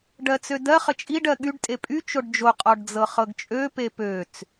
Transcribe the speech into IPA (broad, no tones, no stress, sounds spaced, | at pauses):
ɖ ɜ t͡s ø d ɜ χ ə t͡ʃʼ i ɖ ɜ ɠ y ɖ tʼ e pʼ y t͡ʃ o ɖ d͡ʒ o qʼ ɔ ɖ d͡z ɤ χ ɤ ɡ t͡ʃʼ ø p e p ø t͡s